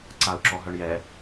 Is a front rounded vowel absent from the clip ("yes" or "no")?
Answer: no